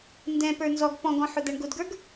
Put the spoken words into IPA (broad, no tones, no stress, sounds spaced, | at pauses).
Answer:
n d ɛ̃ p ə˞ n z ɔ ɡ p ɔ̃ ɡ ɔ̃ ħ ʊ d̪ æ ɳ ɡ ʊ d ɡ ə˞ ɡ